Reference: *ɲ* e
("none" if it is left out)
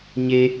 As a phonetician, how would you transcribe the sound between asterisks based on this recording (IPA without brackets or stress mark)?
ɲ